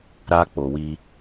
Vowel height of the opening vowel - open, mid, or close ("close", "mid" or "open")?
open